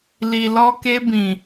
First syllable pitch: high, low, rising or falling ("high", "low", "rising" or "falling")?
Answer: low